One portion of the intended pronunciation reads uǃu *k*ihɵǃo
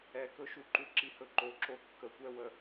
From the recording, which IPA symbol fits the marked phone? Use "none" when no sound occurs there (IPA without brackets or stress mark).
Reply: ǁ